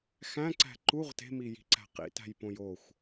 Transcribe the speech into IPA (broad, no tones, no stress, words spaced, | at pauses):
xæ̃ǀæ̤ ǃuʁ te̤miji̤ǀæ̤ qḭtæ̤jpõ joxʷ